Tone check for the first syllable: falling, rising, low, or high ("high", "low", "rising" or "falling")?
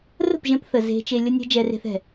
falling